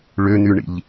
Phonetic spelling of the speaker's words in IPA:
ɭ ø n̪ y ɳ ḭ ʎ

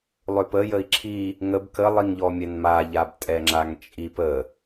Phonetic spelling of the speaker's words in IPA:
lˠ ø p ə j ə i̯ ǁʰ i | ŋ ə b k ə lˠ i ŋ ʎ ɔ mʲ ɛ n m a ʎ a b tʼ ɛ ŋ͡ǁ a ŋ t͡ʃʼ i p ə

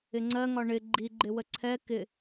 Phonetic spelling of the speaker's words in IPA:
ɪ ŋ͡ǀ ɜ ŋ ɒ ɳ ɪ ɡ͡ǃ i ɡ͡ǃ ɪ w ə ǀʰ ɛ k ɪ

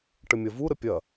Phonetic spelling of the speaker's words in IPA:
ʈ ə mʲ ɐ v u ɾ ə pʲ ɐ

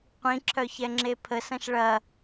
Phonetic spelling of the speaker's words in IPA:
qʷ ĩ ǁʰ œ ç ɛ ŋ͡ǁ e pʰ ə s ɐ̃ ʃ ɭ ɐ

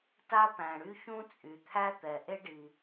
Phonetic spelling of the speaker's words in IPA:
t a˥ p æ̃˩ ɽ y˥ ç ũ˥ t͡sʼ y˩ t̪ʰ æ˥ t̪ ɛ˩ ʔ e˥ ɖ i˩

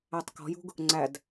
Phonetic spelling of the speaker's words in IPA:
æ tˤ k ɔ̤ j ṳ ɡ | ŋ͡ǀ æ d

